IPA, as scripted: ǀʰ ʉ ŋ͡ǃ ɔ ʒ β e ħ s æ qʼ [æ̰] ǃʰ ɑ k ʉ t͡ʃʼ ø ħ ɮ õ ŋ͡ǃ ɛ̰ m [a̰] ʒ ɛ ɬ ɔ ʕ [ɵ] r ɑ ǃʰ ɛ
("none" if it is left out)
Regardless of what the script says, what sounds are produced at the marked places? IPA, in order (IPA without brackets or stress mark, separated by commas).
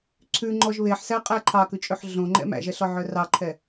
æ, æ̰, œ